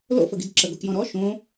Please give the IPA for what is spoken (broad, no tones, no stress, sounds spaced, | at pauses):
l o̰ f ə ɡ i d ǁ ə ɡ o k j ɔ̃ ɾ ɔ ʃ õ